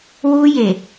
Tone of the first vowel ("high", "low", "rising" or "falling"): high